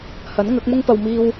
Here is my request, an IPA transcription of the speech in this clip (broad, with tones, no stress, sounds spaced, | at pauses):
h ɐ˨˥ n ŋ ɐ˨˥ k̚ m ʊ˥ ŋ p ɐ˧ w m iː˧ w